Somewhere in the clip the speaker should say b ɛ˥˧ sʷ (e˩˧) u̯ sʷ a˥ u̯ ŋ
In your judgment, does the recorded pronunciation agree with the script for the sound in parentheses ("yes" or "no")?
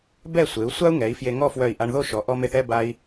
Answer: yes